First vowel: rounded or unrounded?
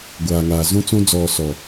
unrounded